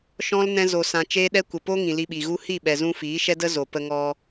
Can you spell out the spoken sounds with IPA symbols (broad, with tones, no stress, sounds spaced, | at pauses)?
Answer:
ʃ ɔ̃˦ l n ɛ̃˦ z o˧ s ã˧ t͡ʃ eː˦ ɗ ɛ˦ kʷ ə˨ p o˦ ŋ ĩ˨ l i˧ ɓ i˨ ɣ u˦ h i˦˨ ɓ ɛ˨ z ũ˧ f iː˨˦ ʃ ɛ˦ d ə˦ z o˨ p ə˧ ŋ ɔ˧